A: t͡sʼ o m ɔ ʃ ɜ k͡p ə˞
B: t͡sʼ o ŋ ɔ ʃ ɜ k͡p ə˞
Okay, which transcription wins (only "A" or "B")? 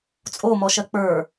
A